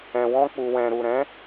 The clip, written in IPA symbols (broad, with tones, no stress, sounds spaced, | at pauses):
ɛ̃˧ w ɔ̃˦ k͡p u˧ w ɛ̃˧ ɾ u˨ ɾ ɛ̃˨˦